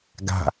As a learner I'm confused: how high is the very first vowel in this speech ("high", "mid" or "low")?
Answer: low